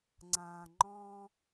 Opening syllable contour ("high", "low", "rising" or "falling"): low